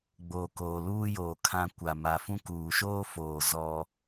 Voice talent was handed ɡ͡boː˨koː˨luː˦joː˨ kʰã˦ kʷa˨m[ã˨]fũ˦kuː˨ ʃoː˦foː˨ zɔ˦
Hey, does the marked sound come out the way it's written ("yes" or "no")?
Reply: no